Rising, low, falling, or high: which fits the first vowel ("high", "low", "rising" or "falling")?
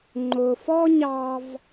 low